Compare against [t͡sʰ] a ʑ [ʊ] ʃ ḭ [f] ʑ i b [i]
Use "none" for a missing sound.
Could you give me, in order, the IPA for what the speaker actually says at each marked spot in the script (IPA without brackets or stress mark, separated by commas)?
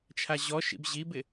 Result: t͡ʃʰ, ɔ, b, ɪ